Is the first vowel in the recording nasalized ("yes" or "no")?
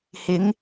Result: no